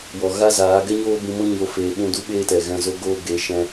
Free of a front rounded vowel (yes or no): yes